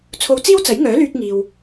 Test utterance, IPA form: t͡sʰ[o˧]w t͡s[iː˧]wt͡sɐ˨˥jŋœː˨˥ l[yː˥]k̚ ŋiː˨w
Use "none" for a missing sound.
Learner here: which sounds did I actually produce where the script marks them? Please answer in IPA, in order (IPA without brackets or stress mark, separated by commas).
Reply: o˧, iː˥, yː˧